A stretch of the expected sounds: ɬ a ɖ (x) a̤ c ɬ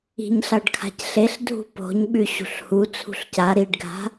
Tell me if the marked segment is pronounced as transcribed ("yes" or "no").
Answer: no